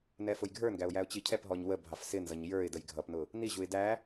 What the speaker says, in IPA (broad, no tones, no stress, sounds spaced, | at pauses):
n ɛ f ʊ j ɡʱ ə˞ n ɡ æ ʊ̯ j æ ʊ̯ t͡ɕ i cʰ ɛ p ɦ ɔ ɲ w ə bʱ ɑ f s ɪ n z ʌ ɲ j ə˞ ɪ̯ d ə j ɡʱ ʌ p n ʊ | n i ʑ u ɪ̯ d æ